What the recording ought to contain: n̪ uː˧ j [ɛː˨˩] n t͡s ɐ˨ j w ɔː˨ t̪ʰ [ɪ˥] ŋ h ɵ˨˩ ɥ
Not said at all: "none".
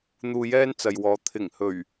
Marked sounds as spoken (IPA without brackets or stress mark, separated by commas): ɛː˥, ɪ˨˩